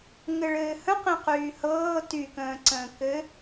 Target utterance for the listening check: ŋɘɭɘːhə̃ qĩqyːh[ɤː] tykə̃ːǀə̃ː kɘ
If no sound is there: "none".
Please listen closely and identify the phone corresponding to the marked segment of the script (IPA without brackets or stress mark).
ɤː